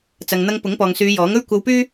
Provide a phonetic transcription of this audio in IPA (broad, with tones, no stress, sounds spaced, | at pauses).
t͡s ɐ˨ ŋ n̪ ɐ˧ ŋ p ʊ˨˥ ŋ p ɔː˨ ŋ s yː˨˧ j ɔː˨˥ ŋ ɵ˥ ɥ kʷ ɐ˧ w p yː˥